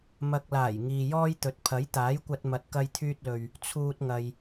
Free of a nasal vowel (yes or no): yes